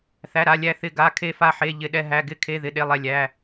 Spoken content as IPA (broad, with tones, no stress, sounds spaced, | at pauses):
θ æ˩˧˩ ɾ a˩˧˩ lʲ æ˧˩ θ ɪ˧˩ ɡ a˩˧˩ kʰ e˧˩ f a˧˩ ħ e˩˧˩ ʎ ɪ˩˧˩ ɗ ɛ˧˩ ɦ æ˩˧˩ ɡ ɪ˧˩ kʰ e˩˧˩ ð ɪ˩˧˩ ɗ e˩˧˩ lˠ ɛ˧˩ lʲ æ˩˧˩